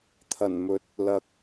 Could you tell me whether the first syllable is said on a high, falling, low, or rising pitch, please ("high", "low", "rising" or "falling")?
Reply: low